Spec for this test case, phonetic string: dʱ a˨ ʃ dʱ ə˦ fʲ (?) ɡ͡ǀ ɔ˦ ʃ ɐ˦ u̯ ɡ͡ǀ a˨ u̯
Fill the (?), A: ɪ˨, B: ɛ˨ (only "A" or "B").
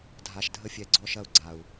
B